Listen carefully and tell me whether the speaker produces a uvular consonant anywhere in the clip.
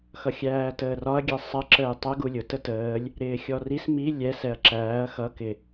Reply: no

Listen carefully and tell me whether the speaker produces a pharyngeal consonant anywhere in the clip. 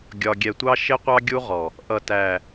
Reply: no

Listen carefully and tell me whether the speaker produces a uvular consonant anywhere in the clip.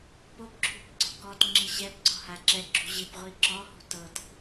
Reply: yes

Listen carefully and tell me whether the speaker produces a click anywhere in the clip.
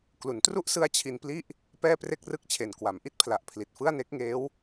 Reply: no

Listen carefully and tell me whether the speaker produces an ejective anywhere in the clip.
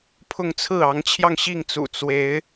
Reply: no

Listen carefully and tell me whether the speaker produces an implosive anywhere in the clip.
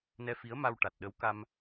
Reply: yes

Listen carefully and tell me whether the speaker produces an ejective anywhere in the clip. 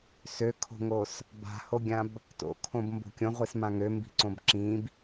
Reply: no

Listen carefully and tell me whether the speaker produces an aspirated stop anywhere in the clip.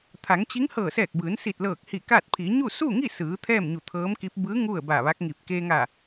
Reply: yes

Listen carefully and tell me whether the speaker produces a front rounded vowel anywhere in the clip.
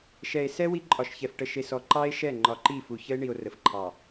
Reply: no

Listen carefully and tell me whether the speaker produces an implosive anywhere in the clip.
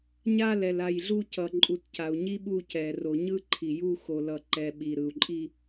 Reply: yes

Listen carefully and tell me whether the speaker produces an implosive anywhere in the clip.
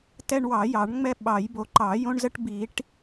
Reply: yes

